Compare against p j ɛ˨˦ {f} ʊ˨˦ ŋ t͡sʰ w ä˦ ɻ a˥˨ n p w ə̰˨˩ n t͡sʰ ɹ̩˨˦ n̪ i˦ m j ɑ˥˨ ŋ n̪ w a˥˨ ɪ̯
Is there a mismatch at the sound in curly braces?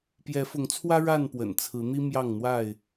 no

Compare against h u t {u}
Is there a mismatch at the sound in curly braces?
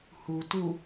no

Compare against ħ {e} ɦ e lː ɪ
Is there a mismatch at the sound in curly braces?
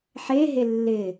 no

